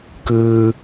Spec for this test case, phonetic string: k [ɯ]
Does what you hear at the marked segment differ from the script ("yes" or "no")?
yes